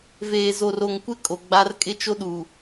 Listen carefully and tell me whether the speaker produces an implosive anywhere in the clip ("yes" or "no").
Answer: yes